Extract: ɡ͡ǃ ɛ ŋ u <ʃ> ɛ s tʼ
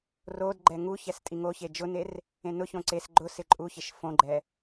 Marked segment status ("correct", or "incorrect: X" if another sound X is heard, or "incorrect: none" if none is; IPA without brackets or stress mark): incorrect: ç